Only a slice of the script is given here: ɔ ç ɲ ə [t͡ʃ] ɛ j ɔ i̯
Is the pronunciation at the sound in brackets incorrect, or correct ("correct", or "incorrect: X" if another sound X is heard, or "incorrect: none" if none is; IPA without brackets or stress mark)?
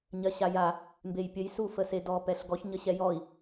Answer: incorrect: ɕ